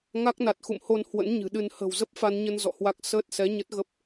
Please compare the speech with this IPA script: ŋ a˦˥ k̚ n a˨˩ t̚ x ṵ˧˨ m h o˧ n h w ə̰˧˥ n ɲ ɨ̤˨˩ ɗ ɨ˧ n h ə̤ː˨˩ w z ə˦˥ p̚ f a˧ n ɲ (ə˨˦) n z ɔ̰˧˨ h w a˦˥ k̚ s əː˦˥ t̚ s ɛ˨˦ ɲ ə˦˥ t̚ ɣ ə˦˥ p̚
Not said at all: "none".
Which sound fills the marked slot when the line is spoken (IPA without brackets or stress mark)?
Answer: ə˧